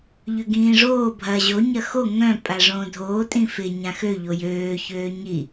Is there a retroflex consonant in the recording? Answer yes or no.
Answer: yes